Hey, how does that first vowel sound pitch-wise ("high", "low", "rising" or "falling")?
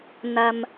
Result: low